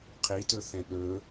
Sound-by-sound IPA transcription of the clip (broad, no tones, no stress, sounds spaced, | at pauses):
qʰ i t ɵ θ ɛ̃ ɗ ɵ